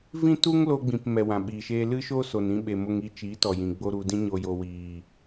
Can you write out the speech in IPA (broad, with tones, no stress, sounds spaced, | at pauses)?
v ĩ˦ t u˦ ŋ l o˧ ɡ͡b ĩ˨ p m ɛ˨ w ã˨ ɓ iː˨ ʃ eː˧ l ɨ˦ ʃ o˦ s o˨ n ĩ˧ ɓ e˨ m o˧ ŋ i˧ t͡ʃ iː˨˦ t ɔ˨ j ĩ˨ ɡ͡b o˦ ɾ u˧ d ĩ˧ ɲ o˨ j o˨ w iː˨